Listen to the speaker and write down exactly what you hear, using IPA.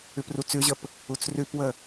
ʉprut͡sʉʑəp | ut͡srʉpwə

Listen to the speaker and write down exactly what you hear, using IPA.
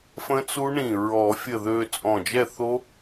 fə̃˦˥t͡su˦˥ɳĩ˧˩ ɹɔ˨˩˦fʲə˧˩ ðø˧ t͡sʼɔ̃˧˩d͡ʒɛ˥˨ θo˦˥

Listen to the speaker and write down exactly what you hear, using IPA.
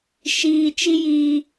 ʃiː˧t͡ʃi˦jiː˧

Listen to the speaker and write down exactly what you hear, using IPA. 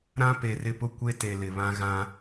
ɾã˦pe˨rɪ˦pʊ˦ kʷe˦te˨lɪ˨βã˦ ɣã˦

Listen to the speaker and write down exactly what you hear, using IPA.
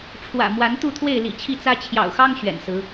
ʈ͡ʂʰwä̰˨˩ mwa˨˦nt̪u˥˨t̪ʰwe˥˨ɪ̯ lḭ˨˩t͡ɕʰi˥˨t͡sä˦ t͡ɕʰjɑ̰˨˩ʊ̯xɑ˦ŋ ɕɥɛ̰˨˩nsɹ̩˨˦

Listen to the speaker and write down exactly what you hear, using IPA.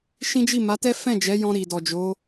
ʃĩ˦d͡ʒi˦˨ ma˨˦tɛ˦ fɛ̃˦˨d͡ʒɛ˨˦jɔ̃˧ ɾi˨dɔ˨d͡ʒo˨˦

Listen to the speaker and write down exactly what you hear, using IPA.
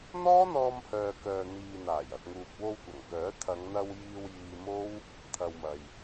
n̪ɔː˥n̪ɔː˧mhœː˨ kœː˨ n̪iː˨n̪aː˨˩j ɐ˨t̚ŋuː˨p̚ wo˧wkʷɐ˨˩ŋkœː˨˥ t̪ʰɐ˨˧ŋn̪ɐ˧w jiː˧wjiː˧mo˥w | t̪ʰɐ˨wmɐ˨j

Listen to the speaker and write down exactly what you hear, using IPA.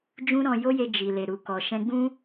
d͡ʒũ˦ɾɔ̃˧ jo˦je˧ d͡ʒi˨ le˨ɾu˨kɔ˨ ʃɛ̃˧ɡ͡bũ˦

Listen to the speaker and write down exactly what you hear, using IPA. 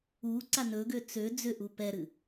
uǀa nɵɡø t͡sø d͡zʏʔu pɛɾɨ

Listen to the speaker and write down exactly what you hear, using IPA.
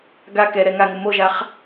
ɡa kɛɾɛ ŋaŋʊ moʒaχ

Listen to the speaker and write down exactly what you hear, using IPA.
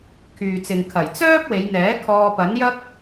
kʰyː˨t͡sɪ˨ŋkʰɐ˨˩j t͡sœː˥p̚we˨˧jn̪ɛː˨˥ kʰɔː˧pɐ˨˥njɐ˥k̚

